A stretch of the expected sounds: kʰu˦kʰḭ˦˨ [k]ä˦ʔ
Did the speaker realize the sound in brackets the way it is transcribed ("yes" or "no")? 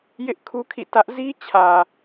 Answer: no